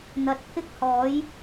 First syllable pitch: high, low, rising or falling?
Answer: rising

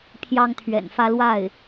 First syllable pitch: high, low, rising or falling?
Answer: high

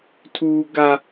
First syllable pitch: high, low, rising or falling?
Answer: high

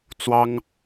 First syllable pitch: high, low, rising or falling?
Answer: high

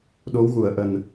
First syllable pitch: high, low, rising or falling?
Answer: rising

